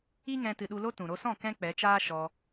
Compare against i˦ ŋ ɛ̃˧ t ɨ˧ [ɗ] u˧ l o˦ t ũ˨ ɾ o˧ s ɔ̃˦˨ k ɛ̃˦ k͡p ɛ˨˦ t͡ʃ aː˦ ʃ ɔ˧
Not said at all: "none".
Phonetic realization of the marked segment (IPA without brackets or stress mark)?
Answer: ɗ